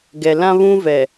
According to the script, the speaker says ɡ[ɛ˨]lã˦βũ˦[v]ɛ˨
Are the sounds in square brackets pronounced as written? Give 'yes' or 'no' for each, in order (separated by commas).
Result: yes, yes